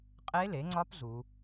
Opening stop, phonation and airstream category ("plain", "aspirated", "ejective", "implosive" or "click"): ejective